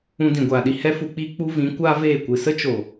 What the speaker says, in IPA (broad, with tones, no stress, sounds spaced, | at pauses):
ũ˧ d ĩ˨ ɡʷ aː˨ ɗ i˧ h ɛ˦ f u˧ k͡p iː˦ k͡p u˦ v ĩ˨˦ kʷ aː˦ v eː˦˨ kʷ ɨ˨ s ə˦ t͡ʃ o˨